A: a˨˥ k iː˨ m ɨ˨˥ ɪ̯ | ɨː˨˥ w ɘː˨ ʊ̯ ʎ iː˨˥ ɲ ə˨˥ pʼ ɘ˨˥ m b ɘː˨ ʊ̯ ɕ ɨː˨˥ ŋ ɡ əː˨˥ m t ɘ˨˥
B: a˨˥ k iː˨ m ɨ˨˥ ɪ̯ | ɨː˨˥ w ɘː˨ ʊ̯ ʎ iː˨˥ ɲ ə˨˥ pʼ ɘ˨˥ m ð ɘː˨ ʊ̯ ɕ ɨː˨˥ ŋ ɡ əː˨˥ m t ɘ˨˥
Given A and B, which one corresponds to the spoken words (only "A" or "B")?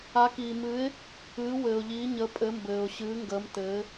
A